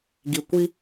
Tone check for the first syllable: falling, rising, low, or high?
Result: low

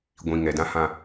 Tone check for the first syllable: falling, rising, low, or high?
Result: low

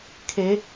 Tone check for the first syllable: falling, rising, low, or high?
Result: rising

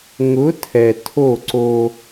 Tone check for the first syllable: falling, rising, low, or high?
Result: rising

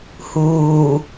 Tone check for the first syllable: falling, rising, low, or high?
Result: low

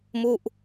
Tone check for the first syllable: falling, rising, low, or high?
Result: falling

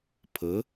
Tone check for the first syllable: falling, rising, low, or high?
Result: rising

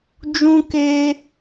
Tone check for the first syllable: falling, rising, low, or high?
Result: high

